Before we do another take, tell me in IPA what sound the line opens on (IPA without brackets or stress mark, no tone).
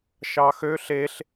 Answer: ʃ